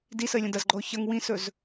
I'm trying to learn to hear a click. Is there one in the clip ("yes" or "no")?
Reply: yes